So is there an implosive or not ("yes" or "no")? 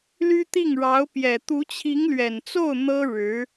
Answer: no